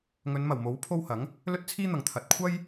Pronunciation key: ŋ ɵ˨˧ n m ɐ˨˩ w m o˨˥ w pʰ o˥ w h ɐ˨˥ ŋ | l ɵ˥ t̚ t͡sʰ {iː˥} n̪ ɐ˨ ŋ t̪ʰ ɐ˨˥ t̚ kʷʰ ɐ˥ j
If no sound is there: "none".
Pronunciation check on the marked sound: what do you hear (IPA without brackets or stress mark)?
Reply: iː˥